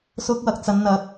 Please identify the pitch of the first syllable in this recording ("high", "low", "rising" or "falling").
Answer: high